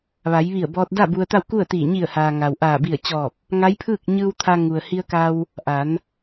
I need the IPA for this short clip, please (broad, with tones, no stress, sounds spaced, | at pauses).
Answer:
ʋ a˩˧ j ʋ i˧˩ ə̯ b ɔː˧ t̚ d a˥˨ b u˧ ə̯ t̪ a˥˨ w k u˥˨ ə̯ t̪ iː˧˩ ɲ i˧˩ ə̯ h aː˩ ŋ a˩ w ʔ aː˧˩ b i˧˩ ə̯ t͡ɕ ɔː˧˩ p̚ | ŋ a˧˥ j pʰ ɯː˥˨ k̚ ɲ ɯː˧ w t̪ʰ a˧ ŋ u˩ ə̯ h i˧ ə̯ k a˧ w | ʔ a˩˧ n